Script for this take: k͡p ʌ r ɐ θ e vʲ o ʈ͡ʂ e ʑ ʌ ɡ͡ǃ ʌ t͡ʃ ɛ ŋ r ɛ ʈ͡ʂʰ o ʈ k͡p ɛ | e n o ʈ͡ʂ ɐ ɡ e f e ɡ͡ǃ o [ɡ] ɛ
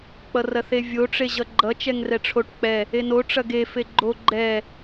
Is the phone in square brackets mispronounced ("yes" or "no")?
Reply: yes